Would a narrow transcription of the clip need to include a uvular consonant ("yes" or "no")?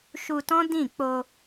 no